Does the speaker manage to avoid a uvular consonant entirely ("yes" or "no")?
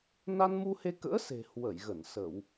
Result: yes